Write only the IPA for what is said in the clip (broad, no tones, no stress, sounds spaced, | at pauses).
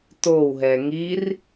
t o w ɦ ɛ ŋ i r